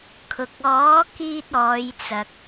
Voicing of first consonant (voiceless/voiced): voiceless